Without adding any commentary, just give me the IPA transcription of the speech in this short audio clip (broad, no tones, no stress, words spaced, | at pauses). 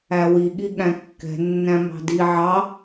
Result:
æwiɠi ɠæ̃kːɛ̤ nːæ̃mɑ̤di ʕɑ